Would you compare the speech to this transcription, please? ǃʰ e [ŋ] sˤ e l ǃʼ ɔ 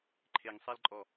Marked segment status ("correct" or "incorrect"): correct